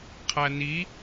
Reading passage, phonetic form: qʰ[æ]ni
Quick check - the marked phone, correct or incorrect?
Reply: correct